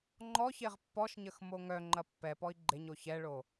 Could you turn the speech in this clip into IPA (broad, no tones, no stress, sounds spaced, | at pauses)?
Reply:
ŋ͡ǃ ɔ ç e ʁ pː ɔ ʃ ɲ ə x m o ŋ œ ŋ͡ǃ ɐ pː ɛ p ɔ i̯ ɡ͡ǃ e ɲ o ç ɛ ɭ o